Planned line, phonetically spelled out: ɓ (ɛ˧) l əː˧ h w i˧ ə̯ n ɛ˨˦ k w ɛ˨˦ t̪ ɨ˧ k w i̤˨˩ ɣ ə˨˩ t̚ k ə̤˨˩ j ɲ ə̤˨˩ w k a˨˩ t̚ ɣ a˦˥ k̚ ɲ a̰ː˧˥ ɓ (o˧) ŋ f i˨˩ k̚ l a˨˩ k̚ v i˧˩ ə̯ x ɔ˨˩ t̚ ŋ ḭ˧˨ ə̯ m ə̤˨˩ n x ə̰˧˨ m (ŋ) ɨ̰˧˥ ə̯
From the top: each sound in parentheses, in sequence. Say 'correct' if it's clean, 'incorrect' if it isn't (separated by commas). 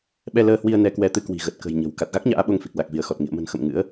correct, correct, correct